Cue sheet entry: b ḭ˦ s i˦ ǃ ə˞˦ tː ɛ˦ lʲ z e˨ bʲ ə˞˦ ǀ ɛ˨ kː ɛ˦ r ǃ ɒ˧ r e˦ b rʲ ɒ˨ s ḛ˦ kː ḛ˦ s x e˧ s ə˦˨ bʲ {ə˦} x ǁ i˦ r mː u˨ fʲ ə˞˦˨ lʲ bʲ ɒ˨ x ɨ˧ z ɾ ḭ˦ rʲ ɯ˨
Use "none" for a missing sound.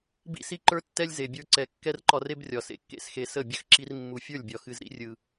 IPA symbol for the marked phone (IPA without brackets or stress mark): ə˦